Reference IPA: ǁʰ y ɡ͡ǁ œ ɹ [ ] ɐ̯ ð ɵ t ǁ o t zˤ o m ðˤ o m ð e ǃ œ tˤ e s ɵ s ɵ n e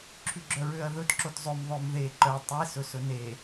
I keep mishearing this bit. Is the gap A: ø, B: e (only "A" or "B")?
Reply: A